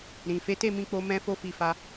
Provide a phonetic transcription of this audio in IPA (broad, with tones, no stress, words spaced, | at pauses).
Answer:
ɾĩ˨ fe˨˦te˦˨mĩ˧k͡po˧ mɛ̃˦fo˦fi˧fa˧